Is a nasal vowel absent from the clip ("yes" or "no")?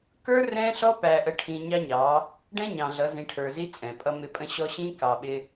no